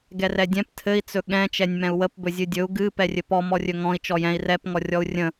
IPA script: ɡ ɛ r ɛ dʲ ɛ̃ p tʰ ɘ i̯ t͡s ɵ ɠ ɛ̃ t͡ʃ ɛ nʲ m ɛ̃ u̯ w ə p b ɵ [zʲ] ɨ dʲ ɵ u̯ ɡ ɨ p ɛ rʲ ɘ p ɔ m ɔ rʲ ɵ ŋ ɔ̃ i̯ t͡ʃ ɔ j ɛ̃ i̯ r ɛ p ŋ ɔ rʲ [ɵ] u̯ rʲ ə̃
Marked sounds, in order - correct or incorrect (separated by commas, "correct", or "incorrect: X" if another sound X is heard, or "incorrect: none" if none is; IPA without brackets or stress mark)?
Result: correct, incorrect: ɔ